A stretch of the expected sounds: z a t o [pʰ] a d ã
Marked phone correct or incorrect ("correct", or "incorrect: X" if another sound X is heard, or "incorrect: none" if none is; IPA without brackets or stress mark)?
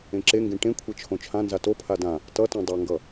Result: correct